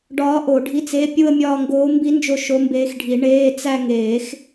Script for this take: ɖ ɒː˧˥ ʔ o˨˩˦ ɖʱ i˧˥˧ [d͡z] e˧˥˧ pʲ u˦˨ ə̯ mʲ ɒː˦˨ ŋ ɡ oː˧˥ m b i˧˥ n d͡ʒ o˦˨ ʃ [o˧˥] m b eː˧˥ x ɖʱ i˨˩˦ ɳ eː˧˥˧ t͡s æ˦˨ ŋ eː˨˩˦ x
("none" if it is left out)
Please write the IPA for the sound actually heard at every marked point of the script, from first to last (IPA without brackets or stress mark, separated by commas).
t͡s, o˧˥